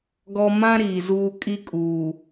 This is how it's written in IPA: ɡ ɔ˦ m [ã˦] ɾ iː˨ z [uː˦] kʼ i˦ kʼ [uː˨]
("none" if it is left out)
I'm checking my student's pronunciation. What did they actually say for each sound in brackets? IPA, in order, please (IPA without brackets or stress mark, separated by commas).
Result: ã˦, uː˦, uː˨